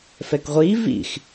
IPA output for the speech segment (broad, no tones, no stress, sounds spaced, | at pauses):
f ɛ k ʁʷ iː v ḭ x